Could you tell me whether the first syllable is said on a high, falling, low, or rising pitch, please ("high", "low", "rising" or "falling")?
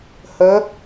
rising